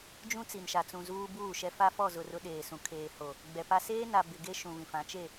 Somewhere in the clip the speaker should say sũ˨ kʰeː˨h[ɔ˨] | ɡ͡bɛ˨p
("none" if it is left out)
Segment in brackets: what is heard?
o˨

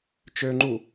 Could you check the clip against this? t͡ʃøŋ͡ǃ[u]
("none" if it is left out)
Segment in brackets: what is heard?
u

